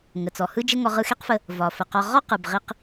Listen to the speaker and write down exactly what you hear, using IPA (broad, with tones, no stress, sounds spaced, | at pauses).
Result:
ŋ ə˩ t͡s ɔ˩ h ɯ˥ d͡ʒ ə˥ ŋ ɔ˧ ʁ ɯ˧ x e˥ q f ə˧ | v ɒ˩ f ə˩ q ɒ˧ ʁ ɔ˥ q ɯ˩ b ʁ i˧ q